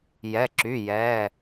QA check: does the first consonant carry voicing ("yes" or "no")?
yes